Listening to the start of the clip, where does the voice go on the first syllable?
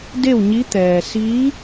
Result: falling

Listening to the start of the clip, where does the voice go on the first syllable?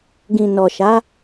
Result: low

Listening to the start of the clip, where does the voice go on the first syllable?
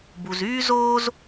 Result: low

